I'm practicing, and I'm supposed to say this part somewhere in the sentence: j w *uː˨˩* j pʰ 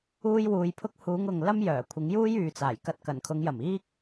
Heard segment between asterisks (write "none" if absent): uː˧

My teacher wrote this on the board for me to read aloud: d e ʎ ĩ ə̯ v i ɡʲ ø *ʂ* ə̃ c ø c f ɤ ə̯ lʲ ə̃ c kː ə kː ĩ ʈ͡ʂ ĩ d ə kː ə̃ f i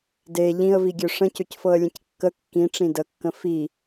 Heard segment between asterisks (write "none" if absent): ʂ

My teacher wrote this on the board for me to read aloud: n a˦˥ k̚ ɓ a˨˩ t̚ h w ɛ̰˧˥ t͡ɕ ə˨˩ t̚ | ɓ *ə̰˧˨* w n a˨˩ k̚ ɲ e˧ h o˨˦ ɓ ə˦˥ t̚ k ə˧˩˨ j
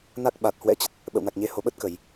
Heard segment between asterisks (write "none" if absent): ə̰˧˨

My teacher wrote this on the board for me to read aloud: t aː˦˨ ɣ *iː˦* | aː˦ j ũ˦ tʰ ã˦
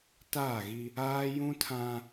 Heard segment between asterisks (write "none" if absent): i˦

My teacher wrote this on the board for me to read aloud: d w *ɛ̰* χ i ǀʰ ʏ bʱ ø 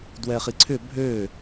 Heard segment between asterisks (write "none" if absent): ɛ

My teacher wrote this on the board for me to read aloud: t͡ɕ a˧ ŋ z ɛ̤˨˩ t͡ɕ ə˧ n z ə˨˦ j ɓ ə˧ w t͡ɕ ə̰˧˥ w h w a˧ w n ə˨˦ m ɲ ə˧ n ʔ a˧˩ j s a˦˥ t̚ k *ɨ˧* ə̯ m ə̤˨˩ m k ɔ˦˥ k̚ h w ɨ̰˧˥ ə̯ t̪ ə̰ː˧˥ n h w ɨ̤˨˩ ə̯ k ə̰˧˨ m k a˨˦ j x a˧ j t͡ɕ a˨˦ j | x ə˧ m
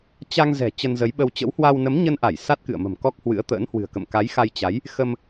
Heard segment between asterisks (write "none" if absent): ɨ̰˧˨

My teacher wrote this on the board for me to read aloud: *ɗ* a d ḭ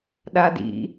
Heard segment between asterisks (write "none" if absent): ɗ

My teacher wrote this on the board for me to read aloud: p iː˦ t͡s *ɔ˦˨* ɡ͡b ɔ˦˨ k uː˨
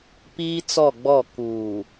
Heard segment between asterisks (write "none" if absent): ɔ˦˨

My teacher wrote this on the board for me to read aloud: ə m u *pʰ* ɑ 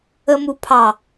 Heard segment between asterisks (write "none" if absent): pʰ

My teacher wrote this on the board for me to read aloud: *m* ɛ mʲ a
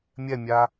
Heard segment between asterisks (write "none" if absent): mʲ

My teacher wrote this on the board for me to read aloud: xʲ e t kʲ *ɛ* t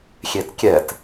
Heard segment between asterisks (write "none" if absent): ɛ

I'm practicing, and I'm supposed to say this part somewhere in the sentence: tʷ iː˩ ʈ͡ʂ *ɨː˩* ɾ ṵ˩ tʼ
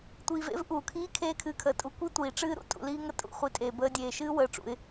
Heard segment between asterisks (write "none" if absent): ɨː˦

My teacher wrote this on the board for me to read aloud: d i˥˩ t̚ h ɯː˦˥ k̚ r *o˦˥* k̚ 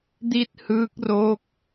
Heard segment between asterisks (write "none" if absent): oː˦˥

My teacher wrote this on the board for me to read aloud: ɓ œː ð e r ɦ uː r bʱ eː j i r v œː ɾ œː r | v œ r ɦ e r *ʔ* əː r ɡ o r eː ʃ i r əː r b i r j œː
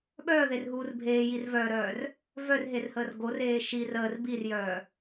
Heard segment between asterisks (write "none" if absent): h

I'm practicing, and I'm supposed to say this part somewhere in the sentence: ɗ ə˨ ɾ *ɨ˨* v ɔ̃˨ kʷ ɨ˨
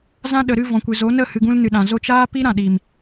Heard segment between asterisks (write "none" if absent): ɨ˧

